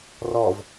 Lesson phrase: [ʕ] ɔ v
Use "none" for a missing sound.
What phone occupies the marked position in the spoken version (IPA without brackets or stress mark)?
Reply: r